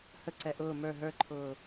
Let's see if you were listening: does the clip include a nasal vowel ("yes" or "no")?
no